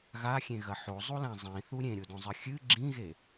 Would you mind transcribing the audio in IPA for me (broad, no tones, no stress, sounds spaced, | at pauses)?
ɣ a xʲ ẽ ɣ ɐ ħ o zˤ u l ã zˤ ĩ θ u ɾʲ ẽ ɾʲ o d õ zˤ ɨ xʲ ɨ ɡ͡ǁ ĩ ɣ e